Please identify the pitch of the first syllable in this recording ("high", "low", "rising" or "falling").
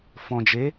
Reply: low